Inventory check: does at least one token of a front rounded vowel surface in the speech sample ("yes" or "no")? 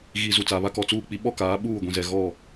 no